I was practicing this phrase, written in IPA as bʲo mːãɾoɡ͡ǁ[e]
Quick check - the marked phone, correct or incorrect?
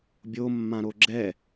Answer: incorrect